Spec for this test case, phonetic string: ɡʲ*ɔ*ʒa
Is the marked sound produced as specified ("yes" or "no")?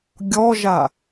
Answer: yes